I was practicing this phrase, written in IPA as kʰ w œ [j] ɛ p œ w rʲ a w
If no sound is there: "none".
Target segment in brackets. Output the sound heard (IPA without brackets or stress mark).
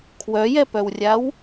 j